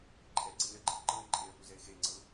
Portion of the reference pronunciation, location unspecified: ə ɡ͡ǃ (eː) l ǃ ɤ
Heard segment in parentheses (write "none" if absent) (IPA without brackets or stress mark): e